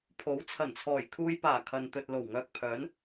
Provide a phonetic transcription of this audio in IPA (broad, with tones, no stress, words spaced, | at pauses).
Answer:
pʰo˨˥w t͡sʰɐ˨˩nt͡sʰɔː˨˩jkʰuː˧jpaː˨˩ kʰɐ˨nt̪ɵ˨t̚ lo˨˩wŋœː˧k̚pʰœː˨˥n